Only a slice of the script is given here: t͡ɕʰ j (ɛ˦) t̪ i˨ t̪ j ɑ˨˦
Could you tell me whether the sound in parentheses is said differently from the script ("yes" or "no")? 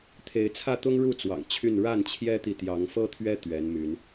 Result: no